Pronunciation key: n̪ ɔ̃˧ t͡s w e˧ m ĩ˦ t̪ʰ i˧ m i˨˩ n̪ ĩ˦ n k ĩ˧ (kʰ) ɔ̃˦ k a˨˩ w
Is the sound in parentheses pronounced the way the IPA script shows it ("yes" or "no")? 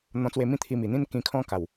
yes